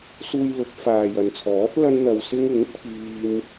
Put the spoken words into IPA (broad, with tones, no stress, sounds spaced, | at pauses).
s uː˧ j l ʊ˨˥ k̚ f aː˨ j ɐ˨ n t͡sʰ ɔː˨˥ t̚ l ɐ˥ n n̪ ɐ˧ w s ɪ˥ ŋ ɪ˨˥ ŋ pʰ iː˥ m